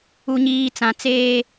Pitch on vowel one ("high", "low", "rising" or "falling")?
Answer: low